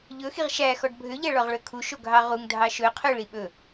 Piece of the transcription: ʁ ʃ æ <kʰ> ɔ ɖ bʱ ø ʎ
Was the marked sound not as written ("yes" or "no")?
yes